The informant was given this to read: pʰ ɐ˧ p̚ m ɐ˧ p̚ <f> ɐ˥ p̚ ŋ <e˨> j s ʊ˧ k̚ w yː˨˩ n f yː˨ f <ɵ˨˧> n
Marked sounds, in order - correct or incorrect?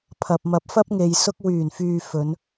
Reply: correct, correct, correct

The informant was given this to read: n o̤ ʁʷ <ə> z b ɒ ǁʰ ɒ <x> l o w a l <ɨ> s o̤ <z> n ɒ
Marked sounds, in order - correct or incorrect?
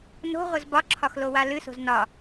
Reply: correct, correct, correct, correct

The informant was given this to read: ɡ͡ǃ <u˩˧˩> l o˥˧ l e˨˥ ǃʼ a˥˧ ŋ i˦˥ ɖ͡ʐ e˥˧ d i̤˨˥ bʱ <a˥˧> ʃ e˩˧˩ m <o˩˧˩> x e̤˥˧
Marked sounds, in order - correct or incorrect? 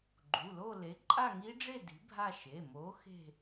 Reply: correct, correct, incorrect

